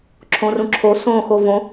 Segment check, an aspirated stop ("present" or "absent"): present